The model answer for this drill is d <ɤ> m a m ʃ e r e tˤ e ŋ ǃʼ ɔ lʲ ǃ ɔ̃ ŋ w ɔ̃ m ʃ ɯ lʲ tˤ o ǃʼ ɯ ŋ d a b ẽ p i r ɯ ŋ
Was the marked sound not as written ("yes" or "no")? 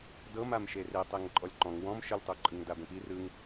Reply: no